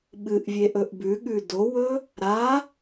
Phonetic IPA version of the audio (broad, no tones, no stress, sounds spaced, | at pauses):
ɓ ɨ ʔ vʲ e ʔ ɵ ʔ b ʉ ɠ ʉ d o w ɵ | ɾ a